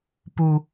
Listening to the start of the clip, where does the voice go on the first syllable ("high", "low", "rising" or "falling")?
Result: high